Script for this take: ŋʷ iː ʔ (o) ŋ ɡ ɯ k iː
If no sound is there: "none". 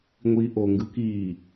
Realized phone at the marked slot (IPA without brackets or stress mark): o